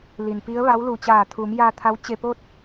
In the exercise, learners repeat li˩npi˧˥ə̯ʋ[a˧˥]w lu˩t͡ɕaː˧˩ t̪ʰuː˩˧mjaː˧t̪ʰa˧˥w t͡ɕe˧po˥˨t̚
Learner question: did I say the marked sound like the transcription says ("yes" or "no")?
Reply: yes